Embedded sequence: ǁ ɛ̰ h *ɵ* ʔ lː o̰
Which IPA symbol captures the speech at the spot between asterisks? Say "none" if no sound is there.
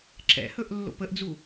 ɵ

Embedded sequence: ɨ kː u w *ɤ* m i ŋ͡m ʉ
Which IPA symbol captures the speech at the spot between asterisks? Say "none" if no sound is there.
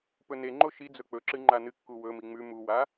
ɵ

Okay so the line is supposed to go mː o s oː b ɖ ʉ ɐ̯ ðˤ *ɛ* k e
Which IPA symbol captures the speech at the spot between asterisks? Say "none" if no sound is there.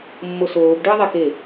ɛ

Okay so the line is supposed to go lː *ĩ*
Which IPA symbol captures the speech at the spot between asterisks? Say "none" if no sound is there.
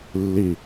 i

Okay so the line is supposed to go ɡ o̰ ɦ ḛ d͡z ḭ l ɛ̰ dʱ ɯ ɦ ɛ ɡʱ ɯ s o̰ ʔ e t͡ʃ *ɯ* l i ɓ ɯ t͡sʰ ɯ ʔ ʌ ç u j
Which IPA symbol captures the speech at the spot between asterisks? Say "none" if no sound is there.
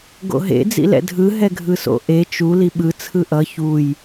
u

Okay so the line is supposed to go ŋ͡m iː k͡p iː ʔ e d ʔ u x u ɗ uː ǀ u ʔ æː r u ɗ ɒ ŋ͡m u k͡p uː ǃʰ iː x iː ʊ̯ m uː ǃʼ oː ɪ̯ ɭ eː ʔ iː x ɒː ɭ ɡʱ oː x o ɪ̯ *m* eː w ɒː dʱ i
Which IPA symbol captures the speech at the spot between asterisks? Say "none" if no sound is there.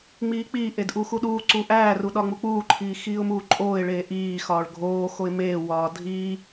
m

